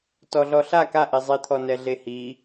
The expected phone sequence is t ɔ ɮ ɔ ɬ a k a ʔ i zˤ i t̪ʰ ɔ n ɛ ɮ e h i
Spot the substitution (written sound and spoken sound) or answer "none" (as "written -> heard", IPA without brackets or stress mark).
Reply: none